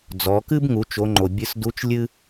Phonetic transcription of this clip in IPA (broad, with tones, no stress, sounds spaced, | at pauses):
d͡z ɔ˩˧ k ɨ˥ b ŋ u˩˧ t͡ʃ o˩˧ ŋ͡ǃ o˩ bʲ ɨ˧ s d u˧˥ t͡ʃ lʲ ɨ˥